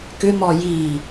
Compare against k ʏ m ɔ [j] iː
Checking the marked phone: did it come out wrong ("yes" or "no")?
no